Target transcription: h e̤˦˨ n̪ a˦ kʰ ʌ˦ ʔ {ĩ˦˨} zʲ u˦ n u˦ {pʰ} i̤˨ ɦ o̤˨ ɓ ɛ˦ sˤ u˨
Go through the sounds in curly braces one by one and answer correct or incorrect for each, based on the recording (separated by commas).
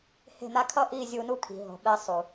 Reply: incorrect, incorrect